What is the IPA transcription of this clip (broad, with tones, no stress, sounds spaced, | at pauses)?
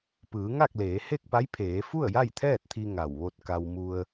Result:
p ɯː˩˧ ŋ a˥˨ k̚ l eː˩˧ h e˥˨ k̚ p a˧˥ j pʰ eː˩˧ f u˥˨ ə̯ j a˥˨ j t̪ʰ ɛː˥˨ t̚ t̪ʰ i˧ ŋ a˧˩ w ʋ o˥˨ t̚ k a˧ w m u˧ ə̯